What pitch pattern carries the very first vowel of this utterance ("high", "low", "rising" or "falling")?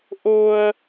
high